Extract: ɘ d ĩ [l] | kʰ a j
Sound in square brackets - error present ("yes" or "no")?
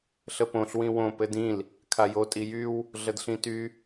no